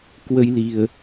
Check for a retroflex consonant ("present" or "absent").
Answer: absent